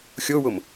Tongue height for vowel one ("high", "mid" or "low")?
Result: mid